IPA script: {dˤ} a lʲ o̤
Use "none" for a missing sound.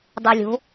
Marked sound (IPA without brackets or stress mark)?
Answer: dˤ